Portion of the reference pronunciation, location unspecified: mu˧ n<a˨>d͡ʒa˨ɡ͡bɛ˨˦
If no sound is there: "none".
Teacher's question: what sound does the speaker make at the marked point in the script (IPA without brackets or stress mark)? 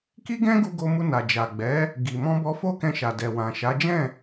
a˨